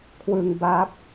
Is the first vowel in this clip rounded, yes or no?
no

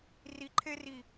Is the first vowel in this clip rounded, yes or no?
no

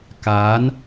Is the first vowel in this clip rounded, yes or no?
no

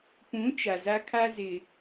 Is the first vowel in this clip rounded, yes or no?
yes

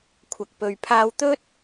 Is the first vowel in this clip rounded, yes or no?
no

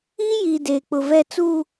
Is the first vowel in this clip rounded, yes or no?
no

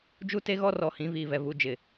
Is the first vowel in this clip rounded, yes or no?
yes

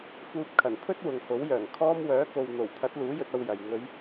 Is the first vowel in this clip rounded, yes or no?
yes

